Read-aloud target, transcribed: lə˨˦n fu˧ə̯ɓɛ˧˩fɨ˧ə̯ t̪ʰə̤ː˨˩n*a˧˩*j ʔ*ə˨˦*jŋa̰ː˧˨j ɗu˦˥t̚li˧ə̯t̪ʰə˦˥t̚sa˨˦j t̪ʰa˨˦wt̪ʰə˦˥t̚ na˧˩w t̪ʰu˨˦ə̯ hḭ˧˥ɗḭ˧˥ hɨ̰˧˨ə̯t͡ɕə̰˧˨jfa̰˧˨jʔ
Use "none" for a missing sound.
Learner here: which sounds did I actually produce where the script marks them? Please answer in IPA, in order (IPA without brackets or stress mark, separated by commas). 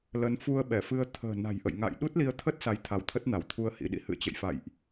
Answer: a̤˨˩, ə̰˧˨